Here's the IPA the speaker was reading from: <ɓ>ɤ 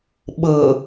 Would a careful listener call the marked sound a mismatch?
no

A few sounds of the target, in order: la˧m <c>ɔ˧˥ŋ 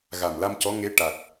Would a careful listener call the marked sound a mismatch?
no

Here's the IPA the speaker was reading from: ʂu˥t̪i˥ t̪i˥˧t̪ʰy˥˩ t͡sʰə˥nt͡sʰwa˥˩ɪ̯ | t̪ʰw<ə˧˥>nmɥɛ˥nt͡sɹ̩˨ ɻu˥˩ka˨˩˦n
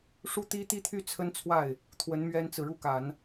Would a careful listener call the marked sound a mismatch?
no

